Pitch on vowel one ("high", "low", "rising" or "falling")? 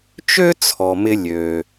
high